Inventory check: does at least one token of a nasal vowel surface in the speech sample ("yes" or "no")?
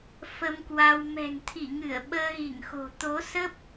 no